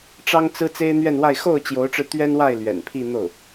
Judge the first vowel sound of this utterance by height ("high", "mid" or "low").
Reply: low